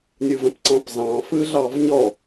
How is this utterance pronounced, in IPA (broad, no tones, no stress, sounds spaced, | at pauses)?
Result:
nʲ ɯ v ə̃ p ǀ ɑ̃ p z ɑ̃ f ɯ ɮ ɑ v ɲ ɔ